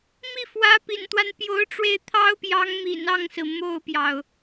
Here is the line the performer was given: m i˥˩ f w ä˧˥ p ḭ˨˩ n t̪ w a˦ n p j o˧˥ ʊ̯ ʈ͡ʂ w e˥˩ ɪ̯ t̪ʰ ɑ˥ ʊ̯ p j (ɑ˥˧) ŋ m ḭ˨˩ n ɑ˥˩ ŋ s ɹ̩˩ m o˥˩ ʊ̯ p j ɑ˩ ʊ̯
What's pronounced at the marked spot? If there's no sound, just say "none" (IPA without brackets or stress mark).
ɑ˧˥